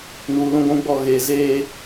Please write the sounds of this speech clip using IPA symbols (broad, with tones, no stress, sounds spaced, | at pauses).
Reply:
n uː˨ l ũ˦ ɡʷ ũ˦ ɡ͡b ɔ˦˨ ɣ eː˨ z eː˦